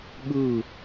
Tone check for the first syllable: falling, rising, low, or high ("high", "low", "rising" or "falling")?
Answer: falling